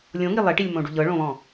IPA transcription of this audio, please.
lʲ õ ŋ i lˠ e ʈ i lʲ m õ ɖ u ʎ ɤ ɭ õ β ɔ̃

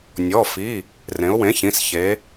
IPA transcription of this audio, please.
nʲ ɔ˩˧˩ f i˩˧˩ | r ẽ˩˧ ʊ̯ w ẽ˩˥ ç ĩ˩˧˩ s ç e˩˧

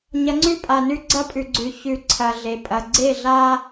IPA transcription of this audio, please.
ɲ ɐ˨˦ ŋ͡ǀ ʉ˦˨ pʼ a˨ n ʉ˦ ɡ͡ǀ ɐ˦˨ pʼ ʉ˨ ɡ͡ǀ ʉ˨ ç ʉ˨ ǀʰ ɐ˨ ɮ e˨ pʼ ɐ˨ ɡ͡ǀ e˦˨ ɮ a˦

